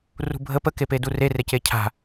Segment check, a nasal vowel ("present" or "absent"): absent